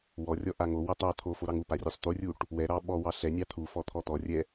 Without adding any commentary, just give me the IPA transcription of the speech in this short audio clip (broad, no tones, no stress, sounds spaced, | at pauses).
w ɔ rʲ ɔ ʔ a ŋ o w ɑ t̪ ɑ t̪ʰ o f o ɾ ɑ ŋ u p a rʲ u sˤ t̪ u rʲ u ʈ | w ɛ ɾ ɑ ɓ ɔ w ɑ ɬ ɛ nʲ ɑ t̪ʰ u f ɔ t̪ʰ ɔ t̪ ɔ rʲ ɛ